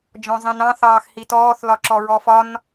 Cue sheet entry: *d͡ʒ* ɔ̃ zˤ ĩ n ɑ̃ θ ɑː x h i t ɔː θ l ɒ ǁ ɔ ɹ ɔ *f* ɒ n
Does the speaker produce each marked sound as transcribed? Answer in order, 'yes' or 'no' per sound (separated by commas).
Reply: yes, yes